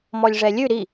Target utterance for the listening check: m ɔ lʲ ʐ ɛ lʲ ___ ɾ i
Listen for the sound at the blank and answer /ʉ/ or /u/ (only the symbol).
ʉ